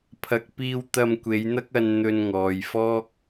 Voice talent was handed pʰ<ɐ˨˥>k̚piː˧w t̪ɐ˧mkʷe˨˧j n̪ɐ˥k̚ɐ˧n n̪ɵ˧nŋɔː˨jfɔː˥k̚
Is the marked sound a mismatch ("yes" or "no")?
yes